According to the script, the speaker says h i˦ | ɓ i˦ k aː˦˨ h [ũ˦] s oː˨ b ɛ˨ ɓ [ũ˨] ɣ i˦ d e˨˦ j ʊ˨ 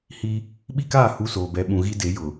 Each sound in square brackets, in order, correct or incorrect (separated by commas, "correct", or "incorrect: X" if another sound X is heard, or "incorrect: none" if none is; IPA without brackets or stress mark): incorrect: u˦, correct